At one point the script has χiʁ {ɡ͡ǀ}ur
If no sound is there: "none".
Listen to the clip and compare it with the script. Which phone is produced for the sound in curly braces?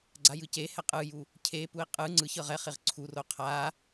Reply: ǀʰ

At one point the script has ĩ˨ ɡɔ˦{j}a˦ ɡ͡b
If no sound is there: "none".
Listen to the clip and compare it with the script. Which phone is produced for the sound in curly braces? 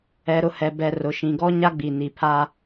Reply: ɲ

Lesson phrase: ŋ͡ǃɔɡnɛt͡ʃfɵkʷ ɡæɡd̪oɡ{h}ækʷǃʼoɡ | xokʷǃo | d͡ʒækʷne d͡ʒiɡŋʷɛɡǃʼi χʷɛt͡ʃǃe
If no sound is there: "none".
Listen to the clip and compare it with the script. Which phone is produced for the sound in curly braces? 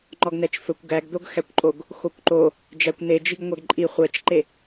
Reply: x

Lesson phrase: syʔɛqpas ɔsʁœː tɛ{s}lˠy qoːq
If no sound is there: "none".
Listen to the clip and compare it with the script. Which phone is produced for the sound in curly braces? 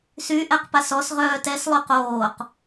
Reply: s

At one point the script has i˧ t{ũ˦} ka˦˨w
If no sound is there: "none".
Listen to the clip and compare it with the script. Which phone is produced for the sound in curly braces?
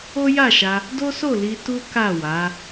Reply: u˦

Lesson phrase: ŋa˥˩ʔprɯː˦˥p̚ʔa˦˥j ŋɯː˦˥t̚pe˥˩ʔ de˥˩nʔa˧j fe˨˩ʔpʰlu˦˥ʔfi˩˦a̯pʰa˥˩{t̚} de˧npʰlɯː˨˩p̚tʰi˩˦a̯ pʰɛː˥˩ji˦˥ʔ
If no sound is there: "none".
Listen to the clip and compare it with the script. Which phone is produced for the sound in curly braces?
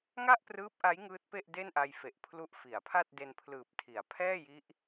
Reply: t̚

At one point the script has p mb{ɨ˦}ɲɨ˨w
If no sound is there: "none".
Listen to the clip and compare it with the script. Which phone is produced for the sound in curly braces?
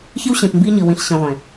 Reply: i˦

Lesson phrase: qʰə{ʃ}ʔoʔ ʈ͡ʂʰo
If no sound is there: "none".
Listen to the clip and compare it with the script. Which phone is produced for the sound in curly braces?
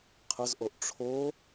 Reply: z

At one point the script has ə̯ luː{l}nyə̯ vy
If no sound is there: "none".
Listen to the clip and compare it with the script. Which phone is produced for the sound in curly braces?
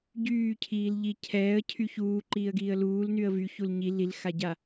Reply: l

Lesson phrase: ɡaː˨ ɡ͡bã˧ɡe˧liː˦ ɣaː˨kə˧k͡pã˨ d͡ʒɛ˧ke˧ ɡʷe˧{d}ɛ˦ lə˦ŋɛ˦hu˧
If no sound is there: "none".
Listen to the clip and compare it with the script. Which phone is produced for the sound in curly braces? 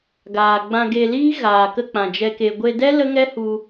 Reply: d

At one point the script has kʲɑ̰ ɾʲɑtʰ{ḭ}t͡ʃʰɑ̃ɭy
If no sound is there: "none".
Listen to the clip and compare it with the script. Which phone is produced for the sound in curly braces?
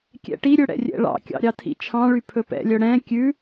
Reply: ḭ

